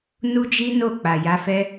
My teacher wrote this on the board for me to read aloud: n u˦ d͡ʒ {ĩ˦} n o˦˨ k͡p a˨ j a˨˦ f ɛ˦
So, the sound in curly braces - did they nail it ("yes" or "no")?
no